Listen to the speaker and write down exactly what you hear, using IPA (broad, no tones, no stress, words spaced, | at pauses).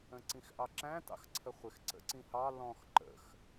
ə̃ǀĩxʔɑǁæ̃ tɑ̰xǀʰəχʷɪx ǀə̰ǀĩhɑ lɔ̃x ǃə̰x